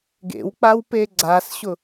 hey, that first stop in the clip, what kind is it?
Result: plain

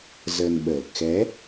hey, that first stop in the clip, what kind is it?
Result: implosive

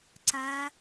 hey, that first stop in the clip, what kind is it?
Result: click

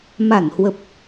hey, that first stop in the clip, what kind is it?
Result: plain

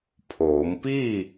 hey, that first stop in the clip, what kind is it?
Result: aspirated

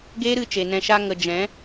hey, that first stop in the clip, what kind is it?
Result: plain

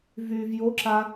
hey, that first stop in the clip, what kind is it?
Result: click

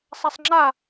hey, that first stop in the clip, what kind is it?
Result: click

